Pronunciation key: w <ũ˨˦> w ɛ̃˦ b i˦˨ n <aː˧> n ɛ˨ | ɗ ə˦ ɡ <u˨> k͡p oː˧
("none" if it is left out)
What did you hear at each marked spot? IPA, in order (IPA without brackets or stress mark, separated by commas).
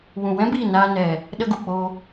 ũ˨, aː˧, u˨